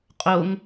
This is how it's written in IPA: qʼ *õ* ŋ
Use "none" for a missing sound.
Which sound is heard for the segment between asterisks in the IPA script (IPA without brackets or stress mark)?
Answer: o